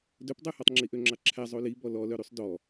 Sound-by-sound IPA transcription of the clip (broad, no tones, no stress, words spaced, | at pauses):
dɵpdˤʉhɔtˤ ŋ͡ǁiʔøŋ͡ǁɑǁʰæ zˤoli bɔlɔlœɾysˤ dɔ